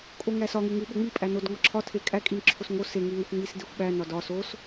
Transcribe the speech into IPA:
kʼ o ŋ æ s ɒ ŋ e ŋ u ɓ o ŋ͡m i pʼ æ n o d ŋ ɒ ǁʰ ɒ tʰ e kʼ æ kʼ i n ǁʰ o s ŋ o s e ŋ e ŋ ɒ xʷ ŋ͡m i s d e xʷ ɓ æ n ɒ d ɒ s o s

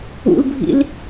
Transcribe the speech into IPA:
ṵ l bʱ ḭ l

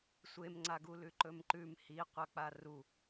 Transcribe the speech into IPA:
sʷ e m ŋ͡ǀ a ɡ u l ʉ ǃ ɵ m ǃ ʉ m h i qʷ a k͡p a r u

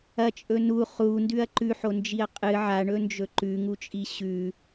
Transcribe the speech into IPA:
ɐ t͡ʃʼ ɵ n u χ u n d ʉ ɐ̯ ǃ ʉ ħ o n d͡ʒ i ɐ̯ qʼ ɨ ʕ a ɳ ɵ n d͡ʒ ɵ ǃ ʉ ŋ u t͡ʃʼ i ɕ ʉ

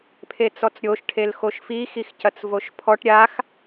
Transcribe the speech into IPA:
pʰ e t͡s ɔ t͡s ɾʲ o ʃ ʈʰ e l x o ʃ f i x i x c ɐ t͡s v o ʃ pʰ ɔ ʈ ɾʲ a x

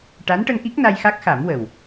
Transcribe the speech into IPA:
ʈ a˧˥ n ʈ ə˧ ŋ ʔ i˦˥ k̚ n a˧ j x a˦˥ k̚ x a˨˩˦ m w ə˨˩ w

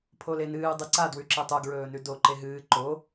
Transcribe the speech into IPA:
pʰ o l e n ɨː dˤ ɨ ǀ a d w ʉ ǁ i tˤ u ɡ ɹ ɵː n ʉ d o ǃ e ɦ ɨː ǃ o

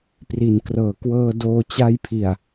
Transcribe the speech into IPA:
p r i˩˦ n k r ɤː˩˦ k w ɤː˧ d oː˧ t͡ɕ a˧ j pʰ i˨˩ a̯

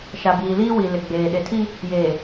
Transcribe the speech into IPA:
ʃ a˨ b iː˨ l iː˦ w i˨ l ɪ˨ ɡ͡b eː˨ ɗ e˨ tʰ i˦ | j eː˨

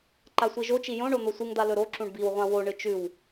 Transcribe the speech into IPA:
ǃ a sʷ i ʒ o t͡ʃ i j õ ɳ o n̪ o sʷ ɨ ŋ d̪ a l ɵ ɾ o ǁ ũ ɳ b i w ʁʷ ã w o ɳ ɨ t͡ʃ ʉ w

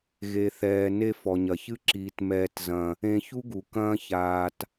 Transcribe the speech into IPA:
ɣ e˨ θ ɛː˨ n e˧ f ɔ˨ ɲ ɐ˨ ç ɨ˦ ǁ iː˨ t m ɛː˧ t z ɐ̃˧ | ẽ˧ ç u˦ ɡ u˨ k ɐ̃ː˦ ç aː˧ t

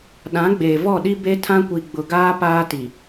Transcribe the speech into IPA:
ɗ ã˨˦ ɡ͡b eː˨ v ɔ˦˨ ɗ i˦ b e˦ tʰ ã˦ kʷ i˨ ɡ͡b ʊ˨ ɡ aː˦ p aː˦ t i˨

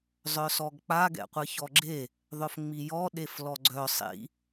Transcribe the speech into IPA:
zˤ œ s ɔ ɡ k͡p a ɡ ɛ̰ qʷ ɨ ç ɔ ɡ͡ǁ e | ðˤ œ f ŋ͡m i j ɔ ɗ e f l ɔ ɡ͡ǀ œ sˤ ḭ

